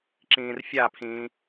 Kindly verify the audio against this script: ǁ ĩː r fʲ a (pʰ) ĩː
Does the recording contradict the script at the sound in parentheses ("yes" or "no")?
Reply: no